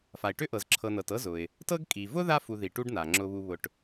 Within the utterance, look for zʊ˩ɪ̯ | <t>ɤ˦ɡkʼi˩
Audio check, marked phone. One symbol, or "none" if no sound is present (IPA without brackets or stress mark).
t